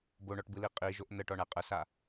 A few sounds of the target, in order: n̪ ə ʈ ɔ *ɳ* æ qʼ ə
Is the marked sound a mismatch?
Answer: no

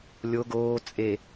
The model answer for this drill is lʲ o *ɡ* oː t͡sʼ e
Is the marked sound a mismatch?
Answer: no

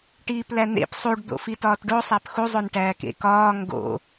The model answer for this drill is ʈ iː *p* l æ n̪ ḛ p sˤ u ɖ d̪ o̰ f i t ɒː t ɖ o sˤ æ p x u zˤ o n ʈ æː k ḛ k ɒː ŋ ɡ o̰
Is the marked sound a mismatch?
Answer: no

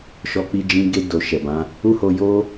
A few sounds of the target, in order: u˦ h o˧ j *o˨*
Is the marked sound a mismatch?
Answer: yes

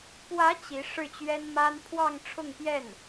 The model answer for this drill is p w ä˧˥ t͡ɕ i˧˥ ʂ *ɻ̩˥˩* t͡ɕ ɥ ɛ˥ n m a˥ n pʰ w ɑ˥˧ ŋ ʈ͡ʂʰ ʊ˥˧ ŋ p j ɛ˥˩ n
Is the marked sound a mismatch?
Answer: no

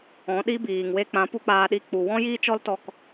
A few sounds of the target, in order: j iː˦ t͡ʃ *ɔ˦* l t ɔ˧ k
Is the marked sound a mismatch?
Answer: no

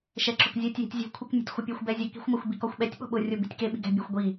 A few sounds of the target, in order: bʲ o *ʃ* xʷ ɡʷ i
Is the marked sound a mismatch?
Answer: yes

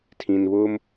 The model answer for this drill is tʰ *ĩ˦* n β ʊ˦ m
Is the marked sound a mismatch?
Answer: yes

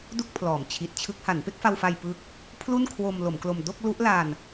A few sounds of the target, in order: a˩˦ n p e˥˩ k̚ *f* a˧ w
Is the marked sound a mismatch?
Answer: no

